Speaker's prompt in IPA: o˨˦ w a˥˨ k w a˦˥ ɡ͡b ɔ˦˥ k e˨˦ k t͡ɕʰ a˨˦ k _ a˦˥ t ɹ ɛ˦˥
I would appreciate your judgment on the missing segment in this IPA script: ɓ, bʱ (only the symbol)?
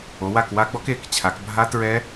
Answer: bʱ